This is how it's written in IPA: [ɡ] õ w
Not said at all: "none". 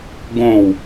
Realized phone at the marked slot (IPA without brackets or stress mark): ɡ